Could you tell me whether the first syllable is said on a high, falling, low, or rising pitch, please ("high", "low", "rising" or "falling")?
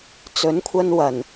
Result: rising